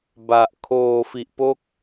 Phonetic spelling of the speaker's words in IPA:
b a˨˩ ʔ kʰ oː˧ f i˨˩ ʔ p o˥˩ k̚

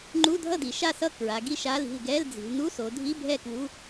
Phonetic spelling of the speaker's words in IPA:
ŋ͡ǃ u˧˥˧ dʱ ʌ˥˨ d i˩˧ ʃ a˥˨ s ʌ˥˨ k ɹ a˩˧ ɡ i˥˨ ʃ a˧˥˧ l i̤˥˨ l ɡ ɛ˧˥˧ l d͡z i̤˩˧ l n u˧˥˧ s o˩˧ dʱ i˧˥˧ bʱ ɛ˥˨ k w u˧˥˧

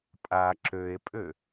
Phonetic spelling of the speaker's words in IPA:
pʼ a ǁ ø e̯ pʼ ø

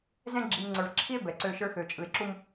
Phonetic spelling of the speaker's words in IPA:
z ɛ̃˦ ɡ͡ǁ i˨ m ŋ͡ǀ ə˞˨ v ǁʰ i˦ e̯ b ɛ˨ ǀ ø˦ ʃ ə˞˦ x ø˨ t͡ʃʼ ɯ˨ e̯ ǁ u˦ m

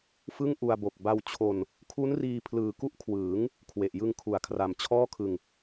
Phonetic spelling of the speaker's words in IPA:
f ɯ˥˩ ŋ ʔ u˧ a̯ b o˨˩ k̚ b a˧ w t͡ɕʰ o˧ n | kʰ u˦˥ n r iː˧ pʰ l ɯː˨˩ k u˦˥ ʔ kʰ w ɯː˩˦ ŋ | kʰ w e˨˩ ʔ j ɯ˧ ŋ kʰ u˩˦ a̯ kʰ r a˨˩ m t͡ɕʰ ɔː˥˩ kʰ ɯ˧ ŋ

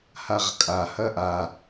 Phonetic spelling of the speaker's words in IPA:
h a ʁ kʼ a h ɐ ʔ a

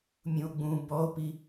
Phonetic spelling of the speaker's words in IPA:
mʲ ũ o̯ ɡ͡b ũ b ɔ o̯ p i

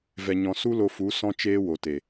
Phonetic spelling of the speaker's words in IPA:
v ɛ˨ ɲ ɔ̃˨ s u˦ l o˧ f u˨˦ s ɔ̃˧ t͡ʃ eː˧ w o˨ t e˨

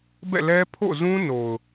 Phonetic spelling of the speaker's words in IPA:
b ɛ̰˦˨ l ɛ˦ pʰ o̰˦˨ z ũ˦ n o˨ ʊ̯

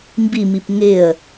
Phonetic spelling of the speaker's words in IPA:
m b i m i p ŋ ɪ ə̯

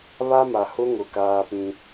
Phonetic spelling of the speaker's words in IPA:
β a˦ m a˨ h ʊ˦ ŋ ʊ˨ k aː˦ p ĩ˦

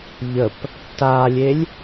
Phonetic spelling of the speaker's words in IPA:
ʎ ə p | t a lʲ e lʲ

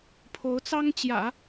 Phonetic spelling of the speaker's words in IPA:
pʰ o˧˥ ʊ̯ t͡s ɑ˥ ŋ t͡ɕ j ä̰˨˩˦

